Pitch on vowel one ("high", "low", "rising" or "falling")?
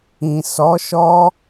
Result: low